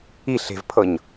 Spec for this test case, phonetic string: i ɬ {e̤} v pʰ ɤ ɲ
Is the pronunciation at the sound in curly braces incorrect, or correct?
correct